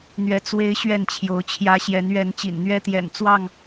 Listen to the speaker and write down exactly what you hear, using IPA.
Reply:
n̪ ɥ ɛ˨˦ t͡s w e˦ ɪ̯ ɕ ɥ ɛ˥˨ n t͡ɕʰ j o˨˦ ʊ̯ t͡ɕʰ j ä˦ ɕ j ɛ˨˦ n ɥ ɛ˨˦ n t͡ɕ ḭ˨˩ n n̪ ɥ ɛ˦ t̪ j ɛ̰˨˩ n t͡s w ɑ˥˨ ŋ

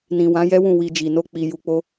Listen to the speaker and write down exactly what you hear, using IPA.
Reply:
n ĩ˨ w ã˨˦ j ɛ˦ w ũ˦˨ w i˧ d͡ʒ i˨ n o˧ k͡p i˨ j u˧ k͡p o˦

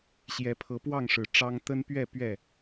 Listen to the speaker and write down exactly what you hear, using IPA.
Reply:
ɕ j ɛ˨˦ pʰ ɤ˨˦ p w ɑ˥˨ ŋ ʂ ɻ̩˨˩ ʈ͡ʂ ɑ˦ ŋ t̪ ə˦ n p ɥ ɛ˥˨ p ɥ ɛ˥˨

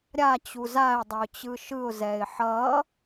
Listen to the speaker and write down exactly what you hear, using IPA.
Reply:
ɾʲ a t͡ɕ u z a ɪ̯ dˤ ʌ ʊ̯ t͡ɕ ɯ ʃ ɯ ʊ̯ z ɛ ɪ̯ ħ ʌ

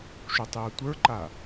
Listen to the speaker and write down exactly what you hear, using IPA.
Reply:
ʃ u tˤ j ə˞ tʷ ə˞ ǃ a

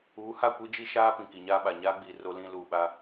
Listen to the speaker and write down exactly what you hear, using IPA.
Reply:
uː˨˦ h a˦˨ kʷ i˦ d͡ʒ i˦ ʃ aː˦ p ĩ˨ k i˨ ɲ aː˦ ɓ a˨ ɲ aː˦ ɡ͡b iː˨ r o˦ l ĩ˦ l uː˨ ɓ a˦

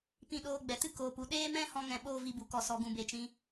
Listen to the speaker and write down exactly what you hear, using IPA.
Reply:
p ĩ˧ ɗ oː˧ ɡ͡b ɛ˨ t ɨ˦ k oː˨ p u˨ ɗ eː˦ m ɛ̃˦ h ɔ̃˦ ŋ ɛ̃˧ ɓ oː˦˨ v i˧ b u˨ k ɔ˨ s ɔ˧ ɡ ũ˧ b e˨ t͡ʃ ĩ˧

